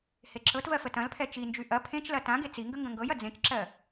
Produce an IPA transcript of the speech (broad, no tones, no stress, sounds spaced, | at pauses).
h e ǁ ɤ t v ɜ f ə t ɐ̃ l pʰ ɛ t͡ʃ i n d͡ʒ y ʔ ɐ pʰ ẽ t͡ʃ l ɐ t ã ɡ e t͡s i ŋ ɡ ə ŋ ɡ ɐ̃ ŋ ɡ ɤ j ɐ d͡z ẽ t͡ʃ ǁ ɜ